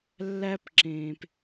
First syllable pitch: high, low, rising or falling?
high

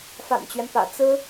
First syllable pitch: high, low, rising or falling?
low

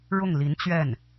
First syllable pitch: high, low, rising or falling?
falling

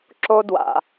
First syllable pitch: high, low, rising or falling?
high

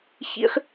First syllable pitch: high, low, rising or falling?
high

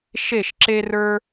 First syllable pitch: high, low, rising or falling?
falling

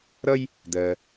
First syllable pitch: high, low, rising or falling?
high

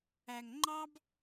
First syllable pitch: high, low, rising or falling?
low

